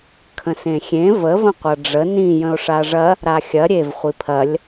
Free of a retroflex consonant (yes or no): no